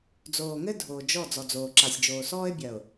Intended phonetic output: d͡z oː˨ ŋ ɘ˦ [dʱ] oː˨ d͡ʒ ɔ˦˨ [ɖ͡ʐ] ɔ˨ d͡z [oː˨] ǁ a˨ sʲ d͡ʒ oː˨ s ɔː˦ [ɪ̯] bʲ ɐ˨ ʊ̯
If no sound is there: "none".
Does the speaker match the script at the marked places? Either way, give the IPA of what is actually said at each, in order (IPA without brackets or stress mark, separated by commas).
dʱ, d͡z, oː˨, ɪ̯